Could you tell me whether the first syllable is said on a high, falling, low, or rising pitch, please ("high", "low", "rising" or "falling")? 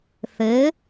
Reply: rising